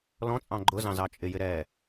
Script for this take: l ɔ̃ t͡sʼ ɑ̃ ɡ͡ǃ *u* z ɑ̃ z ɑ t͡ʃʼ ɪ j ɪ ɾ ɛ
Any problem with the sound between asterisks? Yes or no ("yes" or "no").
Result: yes